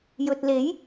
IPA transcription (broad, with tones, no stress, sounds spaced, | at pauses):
j ɵ˨ t̚ l e˨˥ j